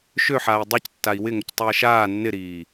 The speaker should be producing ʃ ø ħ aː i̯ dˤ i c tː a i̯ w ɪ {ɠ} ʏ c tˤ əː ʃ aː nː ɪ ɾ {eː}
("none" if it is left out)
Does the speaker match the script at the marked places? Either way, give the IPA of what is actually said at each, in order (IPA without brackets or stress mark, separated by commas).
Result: ŋ, iː